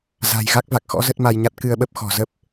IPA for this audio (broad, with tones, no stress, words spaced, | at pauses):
za̤˨˩j ɣa˦˥k̚va˨˩k̚xɔ̰˧˥ zə˦˥t̚ma˧jɲa˦˥t̚ kɨ˧ə̯ɓə˦˥p̚xɔ̤˨˩ zə˦˥p̚